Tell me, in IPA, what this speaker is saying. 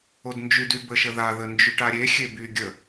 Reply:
odnd͡ʒydy bəʃəðaðə nd͡ʒyʈaɾʲexʲe by ɡʲə

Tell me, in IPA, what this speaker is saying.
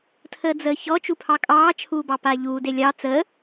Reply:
tʰəːd͡zəːçɔ t͡ʃupʰɑkʼɑː t͡ʃʰuːbɑpaːʎuː delʲɑ t͡səː

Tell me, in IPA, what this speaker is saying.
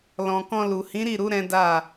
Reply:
lɔ̃˨kɔ̃˧lu˨ hĩ˨˦ɾi˦˨ɾu˨˦ ɾɛ̃˦da˦˨

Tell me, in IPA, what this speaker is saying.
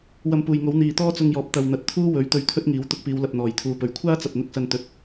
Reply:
wɐ˧mpuː˨jŋo˨˥w n̪iː˨t̪ɔː˥t͡sʊ˧ŋjɔː˨p̚ t̪ɐ˨w n̪ɐ˨˥t̚t̪ʰuː˥wɵ˨˥ɥ t̪ɵ˧ɥt̪ʰɵ˥t̚ŋiː˨˥w t̪ʊ˧k̚piː˨˧wlɐ˨p̚ n̪ɔː˨˩jt̪ʰuː˨˧pɵ˨˩ɥ kʷʰaː˥t͡sɐ˨p̚n̪ʊ˧k̚ sɐ˧n t̪ɵ˨˥t̚

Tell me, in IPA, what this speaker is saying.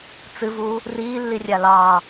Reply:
t͡sɨvu | riːlːirʲa lɑ

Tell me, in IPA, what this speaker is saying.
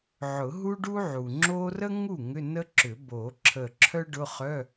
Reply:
ʕʊ˨˩˦ɦu˥ ɖu˥ʕu˩ŋ͡ǁo˥ rə˥ŋu˥˩ ŋʏ˧˥˧nə˥ǁʏ˨˩˦ bo˨˩˦ǁʰə˧˩ ǁʰœ˥ɖʊ˧˥˧χœ˧˥˧

